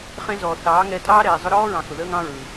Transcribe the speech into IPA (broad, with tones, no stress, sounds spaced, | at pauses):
χ ẽ˦ z ɔː˨ θ ɑː˨˦ ŋ ɛː˧ tʼ ɑː˦ ɾ ɛː˨ zˤ ʊ˧ ɾ ɔː˦ ɹ ɑ̃˨ x ʊ˨ ð əː˦ ŋ ɑ̃˦ ɹ ɯ˨